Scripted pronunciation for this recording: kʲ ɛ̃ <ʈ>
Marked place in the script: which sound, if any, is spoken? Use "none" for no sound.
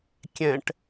ʈ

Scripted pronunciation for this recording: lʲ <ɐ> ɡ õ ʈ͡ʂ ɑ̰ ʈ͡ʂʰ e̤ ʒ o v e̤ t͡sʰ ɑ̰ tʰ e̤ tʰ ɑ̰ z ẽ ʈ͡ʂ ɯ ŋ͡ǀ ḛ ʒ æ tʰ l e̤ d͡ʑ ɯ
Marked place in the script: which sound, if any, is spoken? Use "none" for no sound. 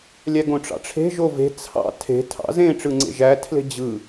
æ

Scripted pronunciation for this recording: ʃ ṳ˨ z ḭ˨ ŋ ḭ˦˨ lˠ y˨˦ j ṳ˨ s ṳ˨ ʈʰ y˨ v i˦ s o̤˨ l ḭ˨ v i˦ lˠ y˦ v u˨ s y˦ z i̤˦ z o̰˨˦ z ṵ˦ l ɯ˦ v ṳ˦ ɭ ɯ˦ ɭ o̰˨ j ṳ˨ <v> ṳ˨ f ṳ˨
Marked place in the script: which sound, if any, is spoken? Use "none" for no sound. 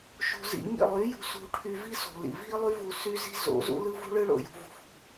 v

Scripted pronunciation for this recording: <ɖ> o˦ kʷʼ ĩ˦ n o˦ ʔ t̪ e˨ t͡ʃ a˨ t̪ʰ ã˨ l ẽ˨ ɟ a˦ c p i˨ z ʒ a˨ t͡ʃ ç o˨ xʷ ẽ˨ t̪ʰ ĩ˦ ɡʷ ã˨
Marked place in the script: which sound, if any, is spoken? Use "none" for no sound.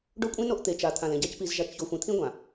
ɖ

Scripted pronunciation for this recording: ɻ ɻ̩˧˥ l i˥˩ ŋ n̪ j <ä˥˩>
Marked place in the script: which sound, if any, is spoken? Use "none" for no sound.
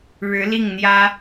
ä˥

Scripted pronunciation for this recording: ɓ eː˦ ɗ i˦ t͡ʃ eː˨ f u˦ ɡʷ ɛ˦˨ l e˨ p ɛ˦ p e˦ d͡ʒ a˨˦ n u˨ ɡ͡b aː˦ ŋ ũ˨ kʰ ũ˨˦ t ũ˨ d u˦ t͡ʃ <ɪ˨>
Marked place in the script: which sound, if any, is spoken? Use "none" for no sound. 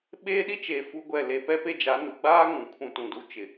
ɪ˨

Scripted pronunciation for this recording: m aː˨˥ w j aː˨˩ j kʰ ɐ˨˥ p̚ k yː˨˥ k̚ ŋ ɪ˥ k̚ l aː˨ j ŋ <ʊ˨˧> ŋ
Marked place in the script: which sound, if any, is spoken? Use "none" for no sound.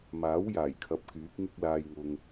ʊ˨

